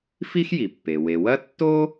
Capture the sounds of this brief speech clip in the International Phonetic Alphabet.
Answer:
f i˥ x j i˩ pː e˩ w e˩ w ɐ˥ tː o˥

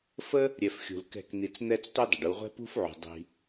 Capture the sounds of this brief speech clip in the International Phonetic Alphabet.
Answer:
f ə˦ | ɾʲ ɛ˧ f xʲ ṳ˨ l k ɛ̤˦˨ k n̪ i˧ t͡s n̪ ɛ˦ t͡s tʷ i˦ dˤ ə˨ ɖ u˧ ʁʷ ɛ̤˦ p ṳ˦ f ʕ ṳ˨ dˤ i̤˧

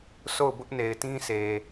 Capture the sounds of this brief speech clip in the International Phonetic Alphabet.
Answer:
s o˦˨ ʊ̯ b ʊ˦ ʔ n e˨ ɪ̯ t ĩ˦ s e˨

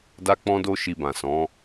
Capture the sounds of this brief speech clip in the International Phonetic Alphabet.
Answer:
d a˦ k͡p ɔ̃˦ d o˦ ʃ i˧ b ã˨ s ɔ̃˨˦

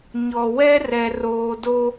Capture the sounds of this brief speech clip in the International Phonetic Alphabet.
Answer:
ɲ ɔ˨ w ɛ˦ r ɛ˨ r oː˨ d o˦

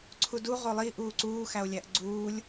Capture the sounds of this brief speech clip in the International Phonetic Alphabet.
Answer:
ǀʰ u d u ʁ o lˠ i ʔ uː ǀ uː x æ o̯ lʲ æ ʔ ɡ͡ǀ uː lʲ

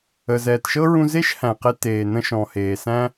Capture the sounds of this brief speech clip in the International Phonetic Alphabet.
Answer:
ə˩ z ɛː˩ t ʃ ɤ˥ ɹ ũ˧ z e˥ ʃ h æ̃˩ q e˧ t eː˩ n ə̃˧ ʃ ɔ̃˩ h eː˩ s æ̃˥

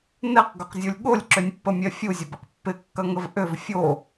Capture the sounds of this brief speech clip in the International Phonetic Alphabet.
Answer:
n ɛ q ɡ ʏ q zʲ u lʲ ɠ o lʲ ǁ ʏ nʲ pː ə mʲ ɛ fʲ u zʲ ʊ b ɪ q pː ɪ kː ɐ ŋ ə v ʔ ʏ v fʲ o

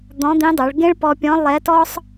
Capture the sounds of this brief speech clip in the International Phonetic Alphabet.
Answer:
d̪ ɔ̃˧˥ d̪ ĩ˧˥ dˤ o˩˧ ɭ ɡ ẽ˥ ɭ p ɔ˧ pʲ ɔ̃˧˥ lˠ ɛ˧˥ t ɔ˥ sˤ

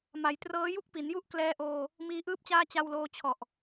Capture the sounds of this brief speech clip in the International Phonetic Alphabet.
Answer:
m a˩˦ j t r ɤː˦˥ j u˥˩ k̚ p i˩˦ n j u˥˩ ʔ k l ɛː˧ ʔ oː˧ | m iː˦˥ ʔ ɯː˥˩ p̚ t͡ɕ aː˥˩ t͡ɕ a˧ w l oː˧ t͡ɕʰ ɔ˨˩ ʔ

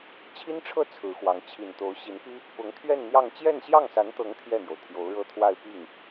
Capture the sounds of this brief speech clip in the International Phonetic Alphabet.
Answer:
t͡ɕʰ i˥ n ʈ͡ʂʰ ɤ˥˩ t͡sʰ ɹ̩˧˥ x w ɑ˧˥ ŋ t͡ɕʰ i˨˩ n t̪ o˧˥ ʊ̯ ɕ i˧˥ n p i˥ | p ʊ˧˥ ŋ t̪ʰ ɥ ɛ˥˧ n n̪ j ɑ˥˧ ŋ t͡ɕ j ɛ˥˧ n ɕ j ɑ˥˩ ŋ s a˧˥ n t̪ ɤ˧˥ ŋ t̪ʰ j ɛ˥˩ n̪ j o˩ ʊ̯ t̪ʰ j o˧˥ ʊ̯ ɻ ɤ˥ t̪ʰ w a˥˧ ɪ̯ p i˥˩ ŋ

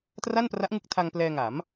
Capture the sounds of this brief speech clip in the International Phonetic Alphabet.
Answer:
t r a˥˩ n p r a˦˥ ʔ ŋ ɯ˦˥ k̚ tʰ a˧ ŋ p l ɛː˧ ŋ a˩˦ m

